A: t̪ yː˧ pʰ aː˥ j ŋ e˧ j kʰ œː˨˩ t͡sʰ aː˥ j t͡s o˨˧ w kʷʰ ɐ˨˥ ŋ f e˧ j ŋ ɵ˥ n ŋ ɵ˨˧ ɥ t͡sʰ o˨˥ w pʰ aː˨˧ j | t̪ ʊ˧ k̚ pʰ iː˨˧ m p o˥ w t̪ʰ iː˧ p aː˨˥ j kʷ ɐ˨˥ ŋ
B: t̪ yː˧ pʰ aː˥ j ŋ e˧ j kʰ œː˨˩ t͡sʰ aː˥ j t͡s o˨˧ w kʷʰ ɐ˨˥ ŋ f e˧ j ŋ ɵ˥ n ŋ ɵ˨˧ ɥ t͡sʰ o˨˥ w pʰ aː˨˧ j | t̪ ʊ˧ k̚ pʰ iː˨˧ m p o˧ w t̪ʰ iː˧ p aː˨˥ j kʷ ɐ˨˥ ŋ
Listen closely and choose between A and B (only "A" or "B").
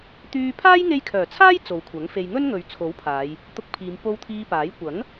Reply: B